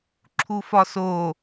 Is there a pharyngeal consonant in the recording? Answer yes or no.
no